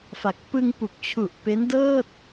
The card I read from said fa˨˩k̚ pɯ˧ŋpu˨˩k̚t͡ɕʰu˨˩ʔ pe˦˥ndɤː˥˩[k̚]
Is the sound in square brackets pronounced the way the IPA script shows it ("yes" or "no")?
no